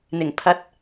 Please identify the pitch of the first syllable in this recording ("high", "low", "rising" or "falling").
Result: low